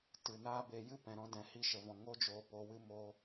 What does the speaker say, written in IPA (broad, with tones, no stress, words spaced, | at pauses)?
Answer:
tɨ˨naː˦be˧ jɨ˦pɛ̃˨ɾɔ̃˧ dɛ̃˨hi˧ʃə˨vɔ̃˨ ŋo˦d͡ʒoː˧ po˧wɨ˦ mo˦